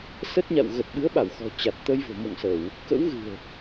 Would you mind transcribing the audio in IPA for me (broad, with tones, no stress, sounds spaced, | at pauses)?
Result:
s ə˦˥ t̚ ɲ a̰˧˨ w ɣ ə˨˩ t̚ ɓ ɨ˨˦ ə̯ ɓ a˧˩ w x ɔ̤˨˩ t͡ɕ a˨˩ t̚ t̪ ə˧ j v o̤˨˩ m o̰˧˨ ŋ s ə˧˩˨ w | k ə̰˧˥ w ɣ ɨ̤˨˩ ə̯